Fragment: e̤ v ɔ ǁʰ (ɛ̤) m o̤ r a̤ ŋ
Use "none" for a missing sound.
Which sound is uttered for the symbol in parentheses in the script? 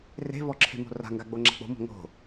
e̤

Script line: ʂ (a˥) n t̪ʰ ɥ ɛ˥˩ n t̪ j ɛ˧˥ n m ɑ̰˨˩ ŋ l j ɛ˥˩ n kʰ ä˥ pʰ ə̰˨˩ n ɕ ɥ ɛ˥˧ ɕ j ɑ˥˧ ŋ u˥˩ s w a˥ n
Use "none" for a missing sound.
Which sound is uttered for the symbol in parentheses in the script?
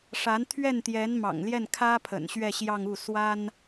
a˧˥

